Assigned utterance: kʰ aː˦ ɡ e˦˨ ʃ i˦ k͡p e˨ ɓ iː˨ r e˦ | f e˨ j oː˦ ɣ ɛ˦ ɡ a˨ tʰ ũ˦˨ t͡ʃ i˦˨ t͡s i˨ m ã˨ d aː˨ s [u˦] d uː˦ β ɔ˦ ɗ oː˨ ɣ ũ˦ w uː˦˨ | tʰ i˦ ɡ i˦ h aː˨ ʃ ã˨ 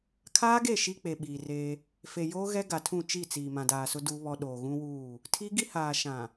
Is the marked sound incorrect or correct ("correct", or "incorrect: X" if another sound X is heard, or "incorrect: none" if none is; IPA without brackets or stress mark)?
incorrect: ʊ˦